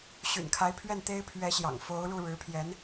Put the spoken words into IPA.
ɕ y̰˨˩ n kʰ a˧˥ ɪ̯ pʰ ɥ ɛ˥˩ n t̪ e˥ ɪ̯ pʰ ɥ ɛ˧˥ ɕ j ɑ̰˨˩ ŋ f o˧˥ ʊ̯ ɻ u˥˩ ɻ ɻ̩˧˥ pʰ j ɛ˧˥ n

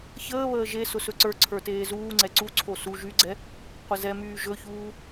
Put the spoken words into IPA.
ç əː β əː ʒ e s ʊ s ɵ ǀ ə˞ ǀʰ ə˞ t eː z uː ŋ͡ǀ ɛ ǀ u ǀʰ o s u ʒ y ɡ͡ǀ ɛ | qʷ ə z ɛ m yː ʒ ɵ ç uː

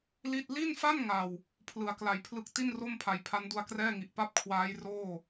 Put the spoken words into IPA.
l i˥˩ t̚ l i˥˩ n f a˥˩ n ŋ a˨˩ w | pʰ l ɯ˨˩ a̯ k l a˨˩ j pʰ l ɯ˥˩ k̚ t i˥˩ n r o˥˩ m pʰ a˨˩ j pʰ a˦˥ n d u˧ a̯ k r ɛː˥˩ ŋ i˨˩ ʔ p a˥˩ p̚ kʰ w aː˦˥ j r oː˥˩

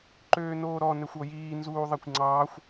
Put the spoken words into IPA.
ǃ øː n oː ɾ ɔ n ɛ xʷ ɔ j iː n z uː ðˤ ɛ kʷ ŋ͡ǀ ɑː xʷ

